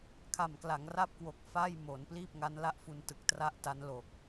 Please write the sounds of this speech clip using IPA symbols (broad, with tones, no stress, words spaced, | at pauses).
kʰa˨˩mkla˩˦ŋra˥˩p̚kwo˨˩k̚ fa˥˩j mo˩˦n pliː˥˩p̚ŋa˦˥nla˥˩ʔfu˧n tɯ˨˩k̚tra˥˩ʔta˦˥n lo˨˩k̚